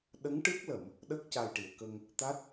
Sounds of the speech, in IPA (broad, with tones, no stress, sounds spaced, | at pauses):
ɗ ə˧˥ ŋ ʈ ɨ˦˥ k̚ l ə˨˩˨ m | ɗ ə˦˥ k̚ c a˨˩ j ʈ i˨˩˨ ə̯ k ə˧ ŋ | t̪ a˦˥ t̚